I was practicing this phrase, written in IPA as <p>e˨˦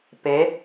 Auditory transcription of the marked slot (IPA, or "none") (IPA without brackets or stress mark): p